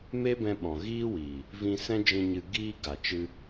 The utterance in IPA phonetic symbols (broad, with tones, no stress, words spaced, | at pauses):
me˦bɛ̃˧ɓɔ̃˨ ɣiː˦wiː˨ | vĩ˧sɛ̃˦ d͡ʒĩ˧ɲɨ˧ ɡiː˧ɡa˨ t͡ʃɨ˧